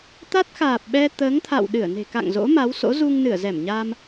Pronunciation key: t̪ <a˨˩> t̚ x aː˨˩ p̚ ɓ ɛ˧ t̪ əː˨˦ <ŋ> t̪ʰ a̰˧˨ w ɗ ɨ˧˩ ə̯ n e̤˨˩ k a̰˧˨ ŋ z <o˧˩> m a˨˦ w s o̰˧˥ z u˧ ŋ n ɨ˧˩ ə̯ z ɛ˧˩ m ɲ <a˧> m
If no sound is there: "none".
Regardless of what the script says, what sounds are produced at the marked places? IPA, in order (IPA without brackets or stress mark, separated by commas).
a˦˥, ŋ, o̰˧˥, a˧